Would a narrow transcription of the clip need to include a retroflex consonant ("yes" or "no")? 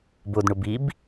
yes